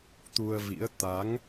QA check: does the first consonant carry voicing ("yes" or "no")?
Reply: no